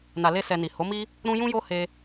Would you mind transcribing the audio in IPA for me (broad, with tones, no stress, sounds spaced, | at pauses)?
n a˨ l e˧ s ɛ˨ n i˨ h o˨˦ m i˦ | ɾ ũ˧ j ũ˦ j o˦ h e˧